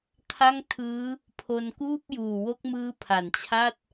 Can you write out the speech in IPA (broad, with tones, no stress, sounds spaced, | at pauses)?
kʰ a˥˩ ŋ tʰ ɯː˦˥ | pʰ o˧ n k uː˥˩ p̚ j uː˨˩ w o˦˥ k̚ m ɯː˦˥ pʰ a˩˦ n t͡ɕʰ a˥˩ t̚